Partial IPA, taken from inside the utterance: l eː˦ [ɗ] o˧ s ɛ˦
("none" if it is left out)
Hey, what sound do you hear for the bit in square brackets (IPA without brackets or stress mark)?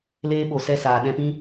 ɓ